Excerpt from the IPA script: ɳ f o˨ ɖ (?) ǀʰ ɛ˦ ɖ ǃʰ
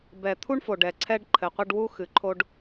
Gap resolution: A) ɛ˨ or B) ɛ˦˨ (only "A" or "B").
A